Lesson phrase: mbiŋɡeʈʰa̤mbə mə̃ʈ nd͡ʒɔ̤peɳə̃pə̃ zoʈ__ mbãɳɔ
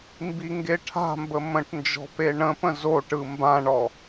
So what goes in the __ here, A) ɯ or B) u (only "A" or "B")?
A